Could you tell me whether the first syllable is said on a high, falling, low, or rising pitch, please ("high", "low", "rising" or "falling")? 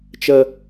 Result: low